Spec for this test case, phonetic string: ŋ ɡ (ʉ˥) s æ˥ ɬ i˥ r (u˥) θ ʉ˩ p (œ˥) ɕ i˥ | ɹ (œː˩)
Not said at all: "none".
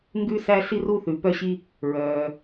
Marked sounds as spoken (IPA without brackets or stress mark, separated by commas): ʉ˥, u˥, œ˥, œː˩